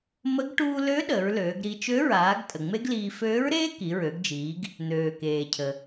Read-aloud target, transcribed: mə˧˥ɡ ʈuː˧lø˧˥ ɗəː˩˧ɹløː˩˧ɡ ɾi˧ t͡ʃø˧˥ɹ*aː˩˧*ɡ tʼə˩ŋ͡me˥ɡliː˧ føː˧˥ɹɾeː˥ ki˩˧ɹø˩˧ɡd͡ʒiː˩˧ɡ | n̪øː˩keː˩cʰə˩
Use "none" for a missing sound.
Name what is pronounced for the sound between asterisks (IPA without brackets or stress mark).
aː˩˧